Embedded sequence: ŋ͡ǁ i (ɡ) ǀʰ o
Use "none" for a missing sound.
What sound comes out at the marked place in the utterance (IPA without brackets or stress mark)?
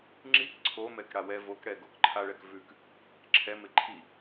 k